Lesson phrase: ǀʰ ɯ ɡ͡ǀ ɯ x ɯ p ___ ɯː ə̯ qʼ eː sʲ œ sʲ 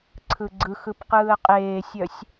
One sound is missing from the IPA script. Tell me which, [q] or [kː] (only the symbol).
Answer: q